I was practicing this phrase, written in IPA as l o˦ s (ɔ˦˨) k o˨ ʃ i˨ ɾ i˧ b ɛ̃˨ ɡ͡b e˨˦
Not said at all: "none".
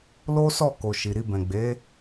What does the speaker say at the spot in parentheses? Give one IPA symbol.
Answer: ɔ˦˨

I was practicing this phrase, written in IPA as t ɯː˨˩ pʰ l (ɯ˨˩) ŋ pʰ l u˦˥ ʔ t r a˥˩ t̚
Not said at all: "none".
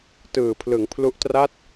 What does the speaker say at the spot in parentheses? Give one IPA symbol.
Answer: ɯ˩˦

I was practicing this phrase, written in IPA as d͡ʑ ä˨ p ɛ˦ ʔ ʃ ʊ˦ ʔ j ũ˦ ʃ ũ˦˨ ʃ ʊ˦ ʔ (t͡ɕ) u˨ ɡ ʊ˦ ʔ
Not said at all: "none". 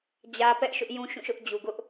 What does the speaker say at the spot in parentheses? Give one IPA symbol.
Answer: d͡ʑ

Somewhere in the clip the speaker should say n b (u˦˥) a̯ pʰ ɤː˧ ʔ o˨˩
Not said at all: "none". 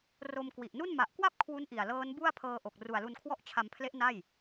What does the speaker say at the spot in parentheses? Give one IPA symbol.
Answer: u˥˩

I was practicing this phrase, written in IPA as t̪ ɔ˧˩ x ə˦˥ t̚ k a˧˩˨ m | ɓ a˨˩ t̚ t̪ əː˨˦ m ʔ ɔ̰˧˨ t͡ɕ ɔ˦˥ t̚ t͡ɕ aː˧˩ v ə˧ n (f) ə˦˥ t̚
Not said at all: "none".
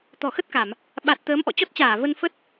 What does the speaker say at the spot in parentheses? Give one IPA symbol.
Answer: f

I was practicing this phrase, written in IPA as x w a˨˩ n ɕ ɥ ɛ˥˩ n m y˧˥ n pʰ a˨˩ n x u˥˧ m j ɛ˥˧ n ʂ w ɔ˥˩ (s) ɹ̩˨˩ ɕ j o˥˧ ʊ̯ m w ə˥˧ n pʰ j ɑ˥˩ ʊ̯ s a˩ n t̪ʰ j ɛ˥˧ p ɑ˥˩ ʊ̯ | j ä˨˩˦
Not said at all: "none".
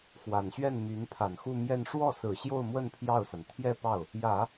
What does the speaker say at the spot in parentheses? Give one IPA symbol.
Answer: s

